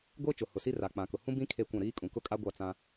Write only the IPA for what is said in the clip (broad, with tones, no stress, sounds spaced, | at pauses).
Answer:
ɡʷ e˦ t͡ʃ ʊ˨ h ʊ˨ s i˦ r a˨ k͡p ã˨ k ʊ˨ h ũ˦ b ĩ˦ kʰ e˦˨ kʷ ã˦˨ ɾ iː˦ kʼ ũ˨ k ʊ˦ kʼ a˦ ɡʷ a˦˨ t͡s ã˦